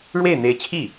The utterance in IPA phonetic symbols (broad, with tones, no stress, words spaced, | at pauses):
ɻwe˥˩ɪ̯n̪e˧˥ɪ̯t͡ɕʰi˥˩